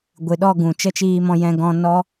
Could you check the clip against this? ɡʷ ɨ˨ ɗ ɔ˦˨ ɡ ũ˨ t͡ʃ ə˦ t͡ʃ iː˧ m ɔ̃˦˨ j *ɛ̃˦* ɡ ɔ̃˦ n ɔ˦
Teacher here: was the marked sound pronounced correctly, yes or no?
yes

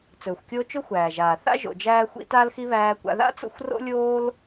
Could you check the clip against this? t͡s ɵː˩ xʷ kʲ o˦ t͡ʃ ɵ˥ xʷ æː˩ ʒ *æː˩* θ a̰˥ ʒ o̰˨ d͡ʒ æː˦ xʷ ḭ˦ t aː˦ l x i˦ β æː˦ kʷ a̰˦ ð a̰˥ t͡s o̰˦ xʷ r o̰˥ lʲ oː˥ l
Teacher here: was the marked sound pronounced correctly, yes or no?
no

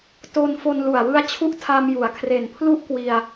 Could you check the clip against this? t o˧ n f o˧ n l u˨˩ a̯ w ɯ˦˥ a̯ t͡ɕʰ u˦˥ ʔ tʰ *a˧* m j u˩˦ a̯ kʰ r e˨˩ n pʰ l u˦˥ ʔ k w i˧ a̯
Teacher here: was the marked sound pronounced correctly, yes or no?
yes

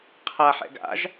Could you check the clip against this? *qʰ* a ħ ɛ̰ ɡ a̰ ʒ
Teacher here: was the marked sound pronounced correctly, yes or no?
yes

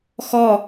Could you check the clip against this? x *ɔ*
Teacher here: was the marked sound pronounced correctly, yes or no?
yes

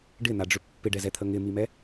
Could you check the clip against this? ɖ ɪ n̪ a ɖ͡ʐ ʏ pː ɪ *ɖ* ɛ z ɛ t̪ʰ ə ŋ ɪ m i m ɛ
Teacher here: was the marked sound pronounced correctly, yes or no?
yes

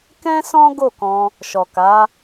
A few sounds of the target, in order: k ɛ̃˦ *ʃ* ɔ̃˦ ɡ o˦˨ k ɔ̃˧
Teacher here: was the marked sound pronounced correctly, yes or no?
no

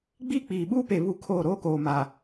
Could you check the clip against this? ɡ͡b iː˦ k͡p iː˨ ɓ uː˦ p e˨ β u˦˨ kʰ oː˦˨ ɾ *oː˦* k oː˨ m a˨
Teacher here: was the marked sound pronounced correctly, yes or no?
yes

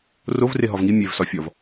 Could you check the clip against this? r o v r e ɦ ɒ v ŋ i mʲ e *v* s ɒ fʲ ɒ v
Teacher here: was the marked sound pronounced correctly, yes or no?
yes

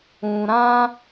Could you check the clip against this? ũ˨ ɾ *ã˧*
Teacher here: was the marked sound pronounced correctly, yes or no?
yes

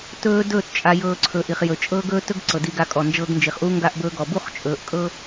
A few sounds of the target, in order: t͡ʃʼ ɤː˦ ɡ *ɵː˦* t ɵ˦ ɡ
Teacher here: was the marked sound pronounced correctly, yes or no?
yes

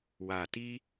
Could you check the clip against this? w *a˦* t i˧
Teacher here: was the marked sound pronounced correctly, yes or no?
no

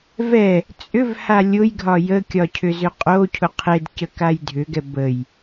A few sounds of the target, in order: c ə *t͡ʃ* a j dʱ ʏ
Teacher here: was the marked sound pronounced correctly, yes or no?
no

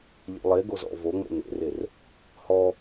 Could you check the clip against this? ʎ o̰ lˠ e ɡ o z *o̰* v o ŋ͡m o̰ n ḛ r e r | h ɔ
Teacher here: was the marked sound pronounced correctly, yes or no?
no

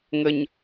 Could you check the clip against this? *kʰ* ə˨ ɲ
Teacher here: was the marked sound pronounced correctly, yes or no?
no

